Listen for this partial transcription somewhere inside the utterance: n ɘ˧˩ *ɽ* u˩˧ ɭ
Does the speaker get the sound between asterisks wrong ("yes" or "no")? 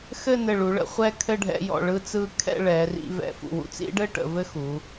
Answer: yes